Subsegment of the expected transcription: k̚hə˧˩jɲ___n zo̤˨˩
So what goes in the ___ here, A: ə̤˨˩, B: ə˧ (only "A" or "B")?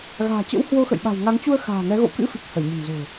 A